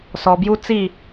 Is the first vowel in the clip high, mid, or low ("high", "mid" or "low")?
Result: mid